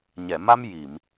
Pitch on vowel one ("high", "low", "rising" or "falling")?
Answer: low